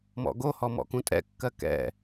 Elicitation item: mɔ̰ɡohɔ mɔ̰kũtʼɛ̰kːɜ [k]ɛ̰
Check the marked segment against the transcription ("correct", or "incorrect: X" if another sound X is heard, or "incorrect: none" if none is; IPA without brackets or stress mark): correct